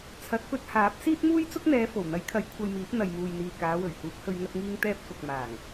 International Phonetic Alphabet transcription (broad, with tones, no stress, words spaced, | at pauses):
t͡sʰɐ˨˥t̚pɵ˧t̚haː˨˥p̚ siː˥t̚muː˥jt͡sʊ˥k̚n̪ɛː˨˧ fo˨˩wn̪ɐ˨˥jkʰɐ˨˥j kʷʰɐ˧jmiː˨˥p̚ n̪ɐ˨jmuː˨jn̪iː˨ kaː˨˧wɵ˨˩ɥhuː˨˥k̚hɵ˧ɥ ŋɐ˧t̚ŋiː˧ŋ t̪ɛː˧p̚kʊ˨k̚ maː˨˩ŋ